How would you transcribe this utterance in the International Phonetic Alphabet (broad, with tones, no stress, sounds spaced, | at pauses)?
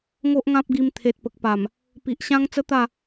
ŋ o˦ ʔ ŋ ã˦ p̚ ɡ i˧ m t̪ʰ e˨ t̚ p ə˨ k̚ p a˨˩ m | p i˨ ʔ ɕ ã˦ ŋ t͡s ə˦ t̪ a˥˧